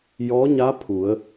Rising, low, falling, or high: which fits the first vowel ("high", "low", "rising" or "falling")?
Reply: rising